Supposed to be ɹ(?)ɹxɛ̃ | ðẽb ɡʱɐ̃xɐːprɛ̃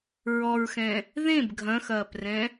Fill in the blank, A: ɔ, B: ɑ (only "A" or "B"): A